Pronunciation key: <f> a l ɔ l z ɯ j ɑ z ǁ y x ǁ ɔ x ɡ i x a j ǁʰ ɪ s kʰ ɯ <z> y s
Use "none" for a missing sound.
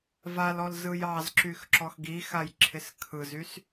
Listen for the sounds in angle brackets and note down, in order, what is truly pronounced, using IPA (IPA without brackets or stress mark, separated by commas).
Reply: v, z